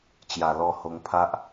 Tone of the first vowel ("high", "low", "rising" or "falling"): low